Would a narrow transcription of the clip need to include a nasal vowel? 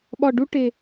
no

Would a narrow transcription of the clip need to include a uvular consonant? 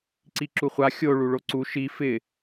yes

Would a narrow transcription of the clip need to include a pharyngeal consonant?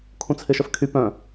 no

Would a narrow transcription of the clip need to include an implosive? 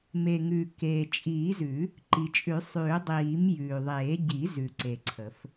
no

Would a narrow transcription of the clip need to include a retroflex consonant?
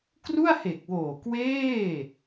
no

